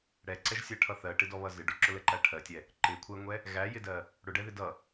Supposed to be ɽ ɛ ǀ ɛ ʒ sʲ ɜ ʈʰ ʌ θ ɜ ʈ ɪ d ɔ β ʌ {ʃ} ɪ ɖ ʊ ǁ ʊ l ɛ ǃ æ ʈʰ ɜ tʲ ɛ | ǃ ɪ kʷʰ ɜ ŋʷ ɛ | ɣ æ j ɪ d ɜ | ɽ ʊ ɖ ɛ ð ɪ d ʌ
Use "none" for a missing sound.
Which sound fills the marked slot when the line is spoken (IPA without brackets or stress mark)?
z